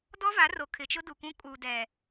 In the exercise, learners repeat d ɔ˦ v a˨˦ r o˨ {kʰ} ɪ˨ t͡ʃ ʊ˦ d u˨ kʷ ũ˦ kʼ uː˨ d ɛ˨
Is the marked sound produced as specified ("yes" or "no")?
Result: yes